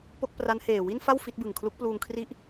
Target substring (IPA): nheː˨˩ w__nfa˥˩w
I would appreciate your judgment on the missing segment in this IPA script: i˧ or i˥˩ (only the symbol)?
i˥˩